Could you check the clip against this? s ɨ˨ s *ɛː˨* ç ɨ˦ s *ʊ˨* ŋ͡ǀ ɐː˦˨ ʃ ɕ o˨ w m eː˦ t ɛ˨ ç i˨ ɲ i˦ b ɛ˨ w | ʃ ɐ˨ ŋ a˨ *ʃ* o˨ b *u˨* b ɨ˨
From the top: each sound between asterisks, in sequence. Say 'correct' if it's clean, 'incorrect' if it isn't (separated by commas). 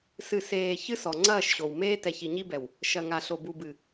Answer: incorrect, incorrect, incorrect, correct